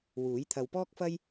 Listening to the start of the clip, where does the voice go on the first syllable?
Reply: rising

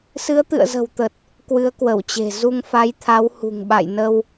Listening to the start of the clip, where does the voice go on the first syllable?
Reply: rising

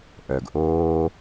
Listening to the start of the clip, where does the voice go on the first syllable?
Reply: low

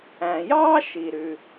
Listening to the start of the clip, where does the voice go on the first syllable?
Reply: low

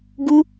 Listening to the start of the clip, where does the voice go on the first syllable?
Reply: high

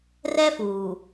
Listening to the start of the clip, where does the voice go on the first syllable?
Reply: high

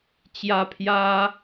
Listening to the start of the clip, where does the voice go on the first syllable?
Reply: high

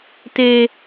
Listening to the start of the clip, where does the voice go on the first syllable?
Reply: high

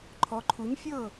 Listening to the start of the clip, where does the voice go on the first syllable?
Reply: rising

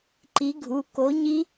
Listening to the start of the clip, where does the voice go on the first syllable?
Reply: rising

